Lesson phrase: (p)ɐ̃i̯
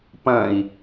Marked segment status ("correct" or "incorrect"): correct